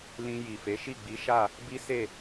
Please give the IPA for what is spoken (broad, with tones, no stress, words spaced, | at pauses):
lĩ˧ ji˨fe˨˦ʃi˦˨ ɡ͡bi˨˦ʃa˦˨ | bi˦se˦˨